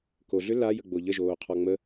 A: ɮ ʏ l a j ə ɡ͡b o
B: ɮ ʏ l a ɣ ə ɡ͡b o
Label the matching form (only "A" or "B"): A